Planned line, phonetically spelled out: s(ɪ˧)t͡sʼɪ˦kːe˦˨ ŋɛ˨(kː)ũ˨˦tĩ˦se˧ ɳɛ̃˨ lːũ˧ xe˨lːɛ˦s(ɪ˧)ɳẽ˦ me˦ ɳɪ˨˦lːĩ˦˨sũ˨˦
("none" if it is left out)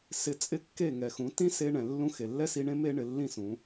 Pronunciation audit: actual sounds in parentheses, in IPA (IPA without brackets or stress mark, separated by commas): ɪ˧, x, i˧